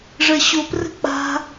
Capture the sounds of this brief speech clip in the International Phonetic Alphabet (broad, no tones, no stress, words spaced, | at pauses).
ʐɜɕoprə̤ k͡pa̤